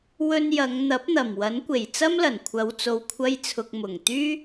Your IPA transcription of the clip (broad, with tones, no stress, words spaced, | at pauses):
wɵ˧njɐ˨˧ŋ n̪ɐ˨˥p̚n̪ɐ˨˩mwɐ˨˥nkʷe˨˩j t͡sɐ˥mlɐ˨˩n kʷʰɐ˨˧wt͡so˨wkʷʰɐ˧jt͡sʰʊ˨k̚ mʊ˨˩ŋ t̪yː˥